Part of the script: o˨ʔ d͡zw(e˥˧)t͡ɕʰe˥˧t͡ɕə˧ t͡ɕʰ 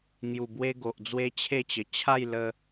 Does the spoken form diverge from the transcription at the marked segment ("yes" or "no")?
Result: yes